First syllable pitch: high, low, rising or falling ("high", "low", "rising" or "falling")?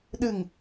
low